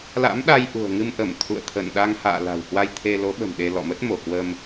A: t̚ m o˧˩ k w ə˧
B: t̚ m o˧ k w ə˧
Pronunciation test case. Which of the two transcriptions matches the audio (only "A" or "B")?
A